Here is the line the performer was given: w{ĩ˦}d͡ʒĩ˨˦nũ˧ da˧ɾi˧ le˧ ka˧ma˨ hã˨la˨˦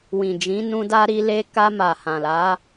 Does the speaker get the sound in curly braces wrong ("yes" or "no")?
yes